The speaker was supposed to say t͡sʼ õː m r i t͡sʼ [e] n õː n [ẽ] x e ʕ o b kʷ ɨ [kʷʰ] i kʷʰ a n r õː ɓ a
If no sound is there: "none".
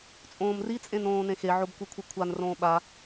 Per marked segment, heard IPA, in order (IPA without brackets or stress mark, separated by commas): ẽ, ẽ, kʷʰ